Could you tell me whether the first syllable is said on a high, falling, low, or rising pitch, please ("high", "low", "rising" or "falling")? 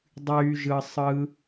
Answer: high